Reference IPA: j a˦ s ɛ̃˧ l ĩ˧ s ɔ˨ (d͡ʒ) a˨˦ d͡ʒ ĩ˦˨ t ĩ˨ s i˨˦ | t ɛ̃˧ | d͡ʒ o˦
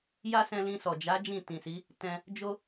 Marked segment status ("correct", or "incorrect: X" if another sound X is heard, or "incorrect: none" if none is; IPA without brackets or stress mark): correct